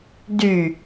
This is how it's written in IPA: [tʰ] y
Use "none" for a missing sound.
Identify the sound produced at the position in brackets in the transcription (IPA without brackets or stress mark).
d